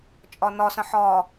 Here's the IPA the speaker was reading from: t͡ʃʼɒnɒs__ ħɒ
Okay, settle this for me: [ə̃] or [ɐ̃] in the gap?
ə̃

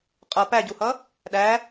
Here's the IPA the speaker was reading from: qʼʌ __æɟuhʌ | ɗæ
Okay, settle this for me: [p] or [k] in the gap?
p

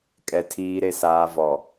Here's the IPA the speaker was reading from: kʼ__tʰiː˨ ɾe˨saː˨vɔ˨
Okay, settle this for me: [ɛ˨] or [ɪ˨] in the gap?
ɛ˨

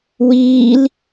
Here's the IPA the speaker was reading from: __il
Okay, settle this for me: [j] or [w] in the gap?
w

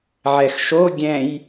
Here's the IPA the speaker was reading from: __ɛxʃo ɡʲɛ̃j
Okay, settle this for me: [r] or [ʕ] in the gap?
ʕ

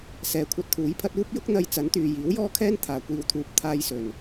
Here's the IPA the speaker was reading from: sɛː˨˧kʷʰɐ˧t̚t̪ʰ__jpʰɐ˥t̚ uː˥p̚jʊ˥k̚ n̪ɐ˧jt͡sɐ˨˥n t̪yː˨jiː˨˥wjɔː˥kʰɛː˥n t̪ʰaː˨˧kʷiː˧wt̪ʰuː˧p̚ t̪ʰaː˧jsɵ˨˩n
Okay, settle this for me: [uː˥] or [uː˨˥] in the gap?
uː˨˥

